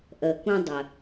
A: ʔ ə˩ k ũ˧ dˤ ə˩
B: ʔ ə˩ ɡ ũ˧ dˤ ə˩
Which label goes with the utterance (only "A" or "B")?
A